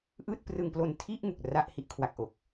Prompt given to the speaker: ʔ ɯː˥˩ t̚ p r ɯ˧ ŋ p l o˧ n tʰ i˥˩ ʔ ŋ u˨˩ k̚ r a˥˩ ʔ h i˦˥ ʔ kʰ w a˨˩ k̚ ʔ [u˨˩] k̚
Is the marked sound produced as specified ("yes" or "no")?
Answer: no